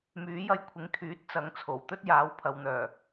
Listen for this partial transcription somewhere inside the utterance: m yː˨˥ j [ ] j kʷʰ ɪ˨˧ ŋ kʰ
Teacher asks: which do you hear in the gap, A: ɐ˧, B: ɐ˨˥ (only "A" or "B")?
A